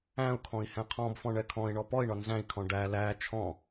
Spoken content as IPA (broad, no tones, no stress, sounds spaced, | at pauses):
æ̃ u̯ kʰ ɔ̃ i̯ h ɛ̃ qʰ ɔ̃ b f ɔ̃ ɳ ɛ kʰ ɔ̃ i̯ ɳ ɔ p ɔ i̯ ɳ ɒ n z æ̃ i̯ kʰ ɔ̃ ɖ æ l æ t͡ʃʰ ɔ̃